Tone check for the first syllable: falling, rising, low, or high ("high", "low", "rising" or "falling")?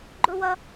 high